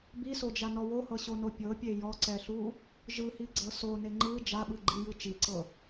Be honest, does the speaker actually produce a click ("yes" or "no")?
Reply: yes